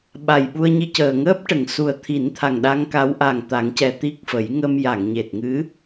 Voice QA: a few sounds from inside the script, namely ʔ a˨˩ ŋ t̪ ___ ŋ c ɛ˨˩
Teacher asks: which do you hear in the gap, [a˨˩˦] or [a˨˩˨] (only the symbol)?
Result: a˨˩˦